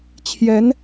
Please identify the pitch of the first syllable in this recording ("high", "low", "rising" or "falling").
rising